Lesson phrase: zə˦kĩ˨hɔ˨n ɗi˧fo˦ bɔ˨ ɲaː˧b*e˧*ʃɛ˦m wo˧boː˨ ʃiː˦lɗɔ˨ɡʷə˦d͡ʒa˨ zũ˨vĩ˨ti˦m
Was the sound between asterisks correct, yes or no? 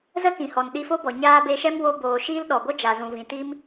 yes